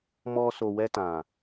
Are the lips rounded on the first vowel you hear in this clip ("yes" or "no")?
yes